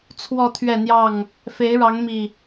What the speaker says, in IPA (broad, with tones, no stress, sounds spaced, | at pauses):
t͡sʰ w ɔ˥˨ t̪ʰ ɥ ɛ˥˨ n̪ j ɑ˥˨ ŋ | f e˨˦ ɪ̯ ɻ ɑ˨˦ ŋ m i˨˩